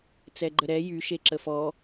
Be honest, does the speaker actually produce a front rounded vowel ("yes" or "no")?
yes